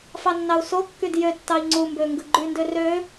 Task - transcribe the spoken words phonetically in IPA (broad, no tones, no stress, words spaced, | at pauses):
fɑnːɑu̯sokːyd jøtːɑi̯ ŋ͡ǀumbø ŋɡɯɡ͡ǃyndø rø